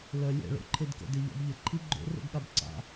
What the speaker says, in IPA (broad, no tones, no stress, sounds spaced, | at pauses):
l œ lʲ ɛ̰ ɭ o̰ ǃʰ e d k ə̰ d e ʎ a̰ b ʎ ə ǃʰ i ɡ͡ǃ o̰ r o̰ ɡ ɠ a b ǀ a̰